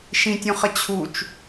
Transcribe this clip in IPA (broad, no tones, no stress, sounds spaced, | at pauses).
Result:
ʃ ĩ tʲ ũ χ ə t͡ɕʰ u t͡ʃ